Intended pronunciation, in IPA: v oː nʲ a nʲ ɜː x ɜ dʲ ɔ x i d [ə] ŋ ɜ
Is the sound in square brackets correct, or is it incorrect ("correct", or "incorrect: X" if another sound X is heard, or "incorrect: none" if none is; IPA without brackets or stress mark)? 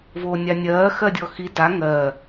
incorrect: a